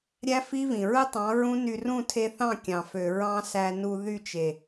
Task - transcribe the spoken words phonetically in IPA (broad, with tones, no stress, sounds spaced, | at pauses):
ɾʲ æ˦ f i˦ v ĩ˨ ɹ ɯ˦ tˤ ɑ̃˨˦ ɹ ũ˦ n y˧ r ũ˦˨ tʰ e˧ θ ɑ̃˦˨ kʲ ɑ̃˨ f ø˨ ɹ ɑ̃˦ s æ˧ n u˧ ð y˦˨ t͡ʃ e˨